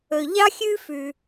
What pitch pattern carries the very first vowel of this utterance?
low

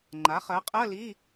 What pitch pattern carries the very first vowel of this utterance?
rising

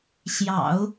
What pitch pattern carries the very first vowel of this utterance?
low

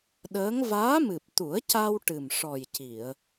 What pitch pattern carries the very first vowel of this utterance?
rising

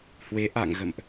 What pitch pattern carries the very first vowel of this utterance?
rising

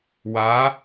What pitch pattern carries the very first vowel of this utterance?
rising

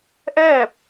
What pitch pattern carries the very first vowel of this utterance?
falling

